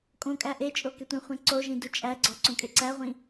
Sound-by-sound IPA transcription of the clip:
kʼ õ kʼ æ ʔ e t͡ʃʼ o k e tʷ ẽ χʷ ẽ ǀ o ʒ ĩ d u t͡ʃʼ æ ɡ͡ǀ ɒ ǀ õ kʼ e ǀ æ ʁʷ ĩ

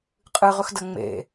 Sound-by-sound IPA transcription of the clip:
qʼ ɨ ʁ ɵ x d ɐ ŋ͡m ḛ

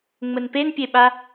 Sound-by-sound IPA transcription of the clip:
ŋ͡m ə n p e n pʲ e ɓ a

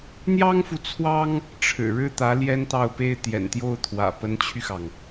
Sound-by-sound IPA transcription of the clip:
n̪ j ɑ˥ ŋ f u˨ t͡sʰ w ɑ˥ ŋ | ʈ͡ʂʰ ɻ̩˨˩ ɻ ɻ̩˥˩ t̪ ä˧˥ l j ɛ˥ n t̪ ɑ˥˩ ʊ̯ p e˥ ɪ̯ t̪ j ɛ̰˨˩ n t̪ j o˥˩ ʊ̯ t̪ʰ w ä̰˨˩ p ə˧˥ n t͡ɕʰ y˧ x ɑ˩ ŋ

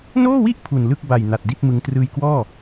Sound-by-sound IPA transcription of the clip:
n oː˥˩ w i˥˩ ʔ pʰ u˨˩ n l ɯ˥˩ k̚ b a˨˩ j n a˨˩ t̚ d i˥˩ t̚ m ɯ˧ ŋ t r ɯː˧ j k w ɔː˥˩

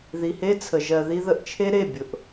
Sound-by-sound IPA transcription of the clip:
ð i˨ h e˦ t͡sʰ ə˨ ʒ ɜ˨ ð i˧ ð ə˧ ʔ t͡ʃʰ e˦ ɾ e˦˨ bʲ ʊ˨ ʔ

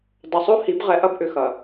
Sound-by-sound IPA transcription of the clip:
dˤ ʊ˨ sˤ o˦ h i˨˦ b ʁ ɛ˨ ʔ ɐ˦ b ʔ ʏ˨ x ɐ˨

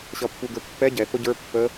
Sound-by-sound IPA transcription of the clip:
ɕ ʌ pː u ɡ ə˞ pː ɛ ɟ ɛ θ ʊ ɟ ə˞ pː ə

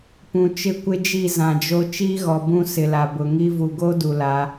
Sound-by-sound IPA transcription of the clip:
p ũ˨ t͡ʃ ɪ˦˨ kʷ ɪ˦ d͡ʒ i˦˨ z ã˨ d͡ʒ o˦ t͡ʃ iː˦ ɣ ɔ˨ b ũ˦ s ɪ˨ l a˨ b ʊ˨ ŋ i˦ v u˨ ɡ o˦ d u˨ l a˨˦

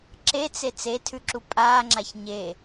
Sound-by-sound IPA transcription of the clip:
ǁ e t͡s e t͡s e tʰ ʉ ǁ u pʼ aː ŋ͡ǁ a ç ɲ e

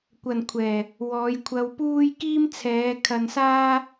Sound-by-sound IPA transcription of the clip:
kʷ ɐ˨ n kʷʰ ɛː˨˩ | w ɔː˨˧ j kʷʰ ɐ˧ w p uː˥ j k iː˥ m t͡sʰ ɛː˨˧ kʰ ɐ˧ n s aː˥

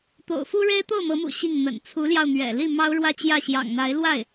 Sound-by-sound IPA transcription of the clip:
t̪ o̰˨˩ ʊ̯ f u˥ ɻ e˥ ɪ̯ t̪ o˥˩ ʊ̯ m ɤ˧˥ m ṵ˨˩ ɕ i˥˩ ŋ n̪ ə̰˨˩ n t͡sʰ u˧˥ l j ɑ˧ ʊ̯ n̪ ɥ ɛ̰˨˩ l i˥˩ m ɑ˥ ʊ̯ ɻ w ä˥ t͡ɕ j ä˥˩ ɕ j ɑ̰˨˩ ŋ n̪ a˧˥ ɪ̯ l w a˥˩ ɪ̯

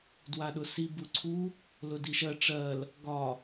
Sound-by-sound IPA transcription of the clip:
d w a ɗ ʊ s i b u ǀʰ u | l ʊ d i ʃ ɜ ʈ͡ʂ ɜ l | ɡ ɒ

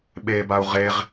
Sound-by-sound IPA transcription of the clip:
ɓ e b a u̯ ʁ e ʁ

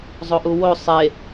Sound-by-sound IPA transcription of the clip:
zˤ o ʔ u w o sˤ e

